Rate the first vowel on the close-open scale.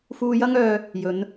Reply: close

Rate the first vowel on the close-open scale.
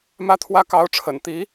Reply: open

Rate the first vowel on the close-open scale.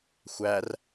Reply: open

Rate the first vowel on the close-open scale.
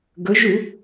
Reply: mid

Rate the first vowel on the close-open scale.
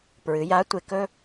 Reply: close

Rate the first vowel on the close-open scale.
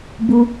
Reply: close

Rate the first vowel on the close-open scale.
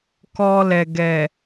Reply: mid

